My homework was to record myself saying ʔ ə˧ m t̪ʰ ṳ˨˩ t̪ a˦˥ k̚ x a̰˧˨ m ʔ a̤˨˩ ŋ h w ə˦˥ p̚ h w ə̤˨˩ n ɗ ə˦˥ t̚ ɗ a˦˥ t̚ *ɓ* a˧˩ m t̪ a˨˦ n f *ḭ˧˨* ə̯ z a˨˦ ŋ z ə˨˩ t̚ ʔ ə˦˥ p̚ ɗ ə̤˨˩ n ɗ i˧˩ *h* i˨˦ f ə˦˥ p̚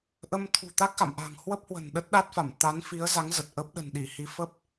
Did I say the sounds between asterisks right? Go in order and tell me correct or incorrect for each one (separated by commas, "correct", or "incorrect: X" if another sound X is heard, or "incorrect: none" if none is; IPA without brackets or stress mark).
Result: incorrect: f, incorrect: i˨˦, correct